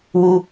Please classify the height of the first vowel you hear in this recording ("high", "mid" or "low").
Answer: high